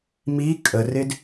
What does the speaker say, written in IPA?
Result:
m i kʼ ə r ɪ d

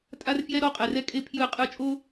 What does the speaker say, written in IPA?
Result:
tʼ a˦ r f j ɛ˦ ɾ ɔ˦ qʼ ɛ˩ r ɛ˦ kʼ e˦ pʰ j ɯ˨˩˦ qʼ ɯ˨˩˦ t͡ʃʼ o˦

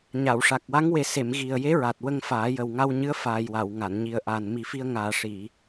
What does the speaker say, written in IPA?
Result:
ɲ a˨˩˨ w ʂ a˨˩ k̚ w a˧˥ ŋ w e˨˩˦ s e˨˩˨ m ɣ i˨˩ ə̯ j e˧˥ ɹ a˨˩ t̚ w ə˧ ŋ f aː˨˩˦ j ə˨˩ w ŋ a˧ w ɲ ɨ˧˥ ə̯ f aː˨˩ j w a˨˩˨ w ŋ a˨˩˨ n ɲ i˨˩ ə̯ ʔ a˨˩ n m i˨˩˦ f i˧ ə̯ ŋ aː˨˩ ʂ i˨˩˨

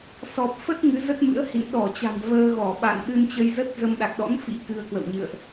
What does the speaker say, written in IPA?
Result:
s ɔ˨˩ p̚ f ə˦˥ t̚ ŋ ɨ˨˦ z ə˦˥ t̚ m ɨ̰˧˥ ə̯ h ḭ˧˨ n ɗ ɔ˧˩ t͡ɕ a̤˨˩ m v əː˧ ɣ ɔ˧˩ ɓ a̰˧˨ n ɗ ɨ˧ n t͡ɕ ə˧ j z ə˦˥ t̚ z ə˧ m ɗ a˨˩ k̚ ɗ ɔ̰˧˥ n f ḭ˧˥ k ɨ˧ ə̯ k w ə̰˧˨ w ɲ ɨ̰˧˨ ə̯ ʔ

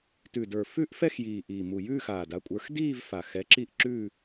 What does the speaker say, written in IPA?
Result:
t ʉ˨˩ d ə˞˨˩ f ʉ˥˧ ʔ f ɛ˥˧ x j iː˨˩ ʔ iː˨˩ m u˨˩ j ʉː˥˧ x aː˨˩ d a˨˦ kʷʼ ə˞˨˦ x d iː˥˧ v f a˨˩ x ɛ˨˦ ǁ i˥˧ ʔ ǁ ʉ˥˧

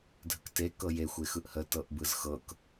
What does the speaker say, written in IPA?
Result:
dʱ ə k t e k ɤ j e xʷ e x ɯ ʔ h ə t ɤ ʔ b ɯ z x ɤ k

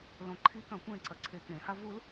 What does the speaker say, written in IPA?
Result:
l õ ǃʰ i k ɐ̃ kʷ ẽ ǀ ɐ ǀʰ e k ẽ h a v u l

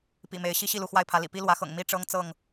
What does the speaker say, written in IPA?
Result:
p ḭ˨˩ m e˨˦ ɪ̯ ɕ i˦ ɕ i˥˨ l u˥˨ x w a˥˨ ɪ̯ pʰ ä˨˦ l ḭ˨˩ p i˦ l w ä˨˦ x ɤ̰˨˩ ŋ m i˦ ʈ͡ʂ ɤ˦ ŋ t͡s ɤ˥˨ ŋ

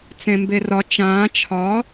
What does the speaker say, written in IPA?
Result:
t͡s ẽ m b e r ɒ t͡ʃ ãː t͡ʃʰ ɒ

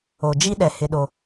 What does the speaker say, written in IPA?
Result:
o˨ d͡ʒ i˦ ɗ ɛ˨ h ɪ˦ ɗ o˦

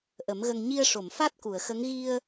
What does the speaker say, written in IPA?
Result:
ʔ ə˨˩˦ m ɣ ə˧ ŋ ɲ i˧ ə̯ ʂ o˨˩˨ m f a˦˥ t̚ k u˨˩˨ ə̯ x ə˧˥ ŋ ɣ i˧ ə̯

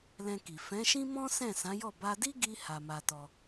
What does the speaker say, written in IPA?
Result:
l ɛ̃˧ k i˨ f ɛ̃˨˦ ʃ ĩ˦ m ɔ̃˦ s ɛ̃˦˨ s ã˨˦ j ɔ˦˨ b a˧ d i˦ ɡ i˧ h a˦ m a˦ t ɔ˧

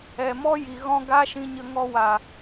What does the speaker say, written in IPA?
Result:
ɛ˨ m ɔ˦ j i˨ ɣ ɔ̃˦ ɡ a˦ ʃ ĩ˧ ɲ ə˧ ŋ ɔ˧ w a˨

